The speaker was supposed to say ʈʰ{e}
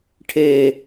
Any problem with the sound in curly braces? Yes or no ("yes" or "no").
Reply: no